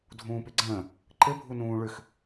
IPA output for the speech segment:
dʱ ũː p ʏ ɡ͡ǀ ə̃ː | ǃ ɘ bʱ u n ũː ɭ ʏ x

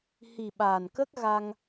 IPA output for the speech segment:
h i˨˩ ɓ aː˨˩ n k ə˦˥ k̚ ɣ a˧ ŋ

